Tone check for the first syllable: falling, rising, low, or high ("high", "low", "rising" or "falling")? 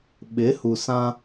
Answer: rising